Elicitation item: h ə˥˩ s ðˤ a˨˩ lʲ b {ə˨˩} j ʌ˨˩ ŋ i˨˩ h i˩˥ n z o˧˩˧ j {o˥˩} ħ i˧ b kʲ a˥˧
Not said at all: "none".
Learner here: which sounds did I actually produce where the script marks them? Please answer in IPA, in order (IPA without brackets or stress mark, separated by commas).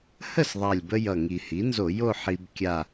ə˧, o˥˧